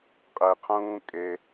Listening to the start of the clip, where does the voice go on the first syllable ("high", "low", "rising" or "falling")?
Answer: low